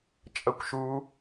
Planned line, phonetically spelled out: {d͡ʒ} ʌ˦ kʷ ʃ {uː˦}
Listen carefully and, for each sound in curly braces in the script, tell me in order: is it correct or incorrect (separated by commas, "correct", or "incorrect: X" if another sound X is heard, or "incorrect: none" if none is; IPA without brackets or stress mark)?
incorrect: t͡ʃʼ, correct